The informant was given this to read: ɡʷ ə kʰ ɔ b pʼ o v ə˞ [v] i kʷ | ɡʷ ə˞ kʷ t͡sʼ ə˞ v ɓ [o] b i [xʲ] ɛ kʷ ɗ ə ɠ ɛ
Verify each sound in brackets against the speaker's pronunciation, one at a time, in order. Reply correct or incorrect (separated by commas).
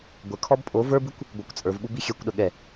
incorrect, incorrect, correct